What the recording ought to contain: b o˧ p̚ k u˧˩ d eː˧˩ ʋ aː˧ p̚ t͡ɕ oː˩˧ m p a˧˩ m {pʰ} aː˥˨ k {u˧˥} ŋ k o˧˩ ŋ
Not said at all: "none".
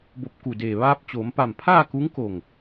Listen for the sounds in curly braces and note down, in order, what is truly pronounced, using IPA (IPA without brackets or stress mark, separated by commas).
pʰ, u˧˥